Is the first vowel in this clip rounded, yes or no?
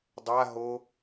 no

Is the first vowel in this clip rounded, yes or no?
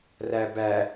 no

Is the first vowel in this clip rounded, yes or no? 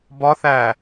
yes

